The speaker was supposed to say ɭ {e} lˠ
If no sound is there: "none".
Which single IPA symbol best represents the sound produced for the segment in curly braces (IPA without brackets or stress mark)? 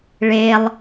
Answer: e